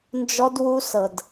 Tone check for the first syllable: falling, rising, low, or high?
high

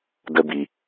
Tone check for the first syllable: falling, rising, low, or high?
high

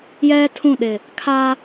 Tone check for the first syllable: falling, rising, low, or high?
high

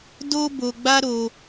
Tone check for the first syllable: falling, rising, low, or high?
high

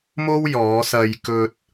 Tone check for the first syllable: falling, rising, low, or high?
high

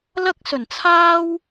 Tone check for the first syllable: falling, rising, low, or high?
high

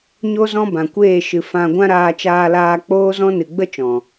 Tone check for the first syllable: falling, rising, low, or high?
high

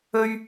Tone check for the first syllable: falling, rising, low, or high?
high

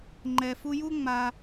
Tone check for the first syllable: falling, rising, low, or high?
low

